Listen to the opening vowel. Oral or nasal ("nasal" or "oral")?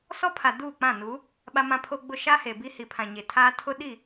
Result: oral